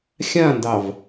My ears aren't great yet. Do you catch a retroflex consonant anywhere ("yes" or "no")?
no